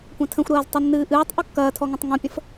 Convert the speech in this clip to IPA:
kʷɐ̃tʰə̃xʷɾɐːz tˤɪnːɨːʔɨːtˤ ʔokːɐːtʰɔŋõtˤ ŋõpʲə̃f

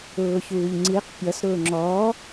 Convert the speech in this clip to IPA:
ʊːçuːʎŋ͡ǀiq pʲʌs ɾʊːŋ͡ǁɔː

